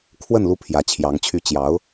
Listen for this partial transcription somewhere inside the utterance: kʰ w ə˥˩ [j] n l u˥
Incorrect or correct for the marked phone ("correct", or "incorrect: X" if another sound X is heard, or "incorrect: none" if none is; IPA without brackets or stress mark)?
incorrect: none